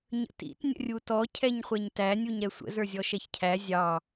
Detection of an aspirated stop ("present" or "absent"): present